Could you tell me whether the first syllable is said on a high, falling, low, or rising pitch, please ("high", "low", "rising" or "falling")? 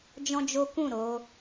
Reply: high